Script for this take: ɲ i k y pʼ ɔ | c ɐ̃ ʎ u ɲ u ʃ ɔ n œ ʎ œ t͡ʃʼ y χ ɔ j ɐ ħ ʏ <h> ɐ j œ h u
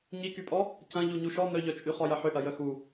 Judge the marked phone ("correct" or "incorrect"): incorrect